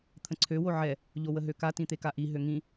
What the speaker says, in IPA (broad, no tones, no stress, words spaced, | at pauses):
t̪ʰə̃ǀʰø woʕɛ | ʎowəɦøka tĩt̪ekaʔi ɦøŋĩ